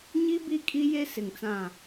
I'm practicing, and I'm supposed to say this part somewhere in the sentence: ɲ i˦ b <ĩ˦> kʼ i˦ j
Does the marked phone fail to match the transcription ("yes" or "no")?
yes